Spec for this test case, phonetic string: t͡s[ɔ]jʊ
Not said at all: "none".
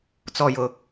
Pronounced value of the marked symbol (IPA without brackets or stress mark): ɔ